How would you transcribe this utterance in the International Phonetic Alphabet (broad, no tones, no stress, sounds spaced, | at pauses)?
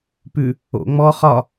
p ʉ | o̰ ŋ͡m ɔ χ ɒ